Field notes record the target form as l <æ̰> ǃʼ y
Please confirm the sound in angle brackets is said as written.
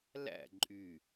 yes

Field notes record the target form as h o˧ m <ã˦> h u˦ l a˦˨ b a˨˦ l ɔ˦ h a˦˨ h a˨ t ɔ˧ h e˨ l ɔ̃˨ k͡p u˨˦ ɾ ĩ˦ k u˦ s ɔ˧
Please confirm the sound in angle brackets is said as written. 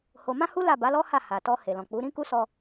yes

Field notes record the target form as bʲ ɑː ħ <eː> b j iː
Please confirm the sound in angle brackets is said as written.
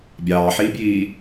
no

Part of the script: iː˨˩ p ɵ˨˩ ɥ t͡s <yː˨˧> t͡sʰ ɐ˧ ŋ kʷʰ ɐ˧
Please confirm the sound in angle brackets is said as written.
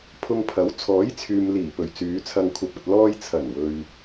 yes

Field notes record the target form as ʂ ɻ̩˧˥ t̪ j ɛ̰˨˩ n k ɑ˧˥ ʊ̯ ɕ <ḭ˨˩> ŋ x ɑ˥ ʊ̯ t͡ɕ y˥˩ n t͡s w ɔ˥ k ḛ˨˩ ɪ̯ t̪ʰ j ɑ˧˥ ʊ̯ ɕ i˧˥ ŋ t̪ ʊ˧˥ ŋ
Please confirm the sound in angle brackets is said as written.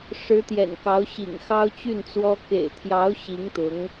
yes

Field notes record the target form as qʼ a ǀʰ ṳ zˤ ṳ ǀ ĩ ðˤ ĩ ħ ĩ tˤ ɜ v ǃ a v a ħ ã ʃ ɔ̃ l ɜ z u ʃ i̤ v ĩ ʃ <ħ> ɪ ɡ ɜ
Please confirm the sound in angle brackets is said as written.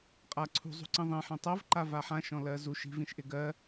no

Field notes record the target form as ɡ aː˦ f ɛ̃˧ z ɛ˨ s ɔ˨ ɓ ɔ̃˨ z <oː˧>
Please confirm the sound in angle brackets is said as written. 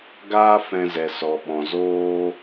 yes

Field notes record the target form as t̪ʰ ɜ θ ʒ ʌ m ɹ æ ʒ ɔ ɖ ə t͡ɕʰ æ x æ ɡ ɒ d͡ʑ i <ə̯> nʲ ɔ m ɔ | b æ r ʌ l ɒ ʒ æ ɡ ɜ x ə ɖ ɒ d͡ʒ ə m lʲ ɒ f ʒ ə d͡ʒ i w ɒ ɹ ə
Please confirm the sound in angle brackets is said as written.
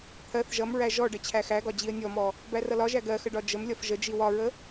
yes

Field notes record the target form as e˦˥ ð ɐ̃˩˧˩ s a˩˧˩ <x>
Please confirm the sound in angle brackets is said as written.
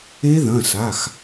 yes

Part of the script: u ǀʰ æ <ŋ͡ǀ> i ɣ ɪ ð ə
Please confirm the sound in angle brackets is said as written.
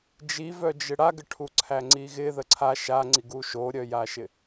yes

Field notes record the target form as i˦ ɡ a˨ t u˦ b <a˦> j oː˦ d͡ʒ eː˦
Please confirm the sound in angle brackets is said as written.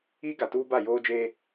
no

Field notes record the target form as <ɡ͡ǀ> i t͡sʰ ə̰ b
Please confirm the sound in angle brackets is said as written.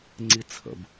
no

